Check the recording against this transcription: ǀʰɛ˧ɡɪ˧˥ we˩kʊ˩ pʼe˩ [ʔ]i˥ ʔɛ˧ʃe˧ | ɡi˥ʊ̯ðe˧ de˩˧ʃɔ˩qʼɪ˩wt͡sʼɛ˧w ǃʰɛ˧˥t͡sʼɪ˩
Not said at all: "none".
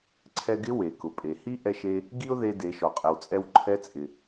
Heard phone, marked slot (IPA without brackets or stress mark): h